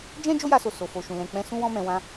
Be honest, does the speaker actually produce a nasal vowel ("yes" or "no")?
yes